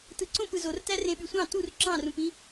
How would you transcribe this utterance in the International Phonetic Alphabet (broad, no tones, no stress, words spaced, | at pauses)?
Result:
tɯǀõp ɯzortæ rẽɓysʷɑ̃ tur ǁɑ̃rũpĩ